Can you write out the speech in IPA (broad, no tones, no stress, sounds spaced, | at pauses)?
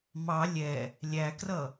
m ɑ lʲ ɛ | lʲ æ k r ʌ